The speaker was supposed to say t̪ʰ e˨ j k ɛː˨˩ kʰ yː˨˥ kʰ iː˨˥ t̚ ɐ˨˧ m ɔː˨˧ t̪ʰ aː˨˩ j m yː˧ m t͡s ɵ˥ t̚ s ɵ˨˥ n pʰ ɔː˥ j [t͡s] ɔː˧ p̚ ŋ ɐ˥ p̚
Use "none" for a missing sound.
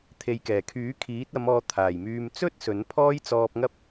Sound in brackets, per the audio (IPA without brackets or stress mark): t͡s